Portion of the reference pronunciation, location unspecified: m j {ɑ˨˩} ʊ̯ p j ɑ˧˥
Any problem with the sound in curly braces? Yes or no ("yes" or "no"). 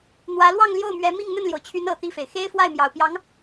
no